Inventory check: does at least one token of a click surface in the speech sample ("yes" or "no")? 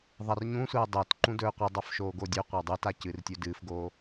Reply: yes